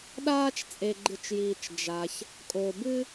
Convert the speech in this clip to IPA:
ɗaː˦t͡ʃ t͡sʼe˨ɡ͡ǃɨ˨t͡ʃjiː˨t͡ʃ d͡ʒa˨ç | kʼo˨bɨ˦

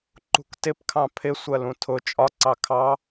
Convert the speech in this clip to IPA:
ǃṳktɪpkʰɑ̃ pʰɪ sʷɜlũtʰʊ t͡ʃʼɒǀɑ kʰɑ

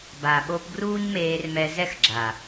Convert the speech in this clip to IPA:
ba˨ɓo˧pɡruː˦ɲmeː˧r mɛ˧zɛ˦xɡ͡ǁa˨

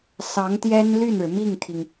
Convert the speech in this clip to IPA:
sɑ˧˥ŋt̪jɛ˥n ly˥˩nɻɻ̩˩ mi˥˩ŋt̪ʰi˩ŋ

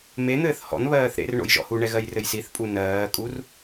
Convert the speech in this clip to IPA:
men̪ɘːθ hɔ̰nβɜːθ ɾḛrɳo̰j ʒɔ̰huɳɛ ɣɜjrɘjsiθpʼu nɜːkʼur

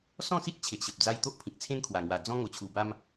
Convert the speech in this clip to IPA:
sɔ̃˥˧si˦t̚ t͡ɕʰe˨ʔɕə˨p̚d͡za˦j t̪o˦ʔpʰĩ˨k̚t͡sʰẽ˦n kʰwa˨˩ŋwa˨˩ d͡zɔ̃˦ ŋo˨˩t͡ɕʰu˨˩ba˦m

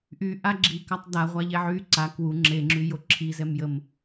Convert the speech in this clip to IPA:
ʔyʔa ɡ͡ǁikatˤ daʁʷaʎɛ ʕy ǀa kwu ŋ͡ǁeŋ͡ǁyjo ǁʰizɛmjəm

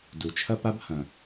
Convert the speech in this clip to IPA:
du˩t͡ʃʰɐ˥pa˥b hɐ̃˩

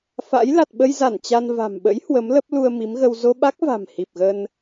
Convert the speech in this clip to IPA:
fa̰˧˥j la˨˩t̚ɓə˧jza˧˩n t͡ɕa˧n va̤˨˩mɓə̰˧˥j hwə˨˦mlə˦˥p̚ lu˧ə̯mi˨˦mɣə˧w zo˧ɓa˦˥k̚va̤˨˩m hi˨˩p̚ɣə˧n

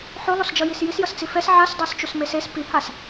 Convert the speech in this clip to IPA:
ħolˠosd͡ʒʌjis jis jʌst͡sifɛs ʕasdˤɛst͡ʃus meses pihas

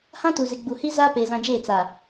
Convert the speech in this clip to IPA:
hã˦tu˨zɪ˨ ɡ͡bu˨hi˦ zaː˦peː˨zã˨d͡ʒeː˦˨ t͡sa˨

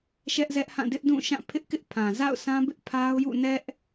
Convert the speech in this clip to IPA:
ʃɛ˦ʔzɛ˦ʔhã˦˨ dɪ˦ʔdũ˦˨ʃã˦˨ pʰɪ˦ʔkɪ˦ʔpʰã˨ za̰˦˨ʊ̯sã˦bɪ˦ʔ pʰa˦ʊ̯jṵ˦˨ nɛ˦ʔ

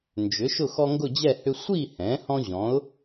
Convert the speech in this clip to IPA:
nd͡ʒʏ˩˥ ʃʊ˥˨xɔ˦ŋɡʊ˥˨d͡ʑɛ˥˨ hʏ˦ sʷi˥˨hɛ̃˩˥ hɔ̃˦ʑɔ̃˩˥ʊ̯

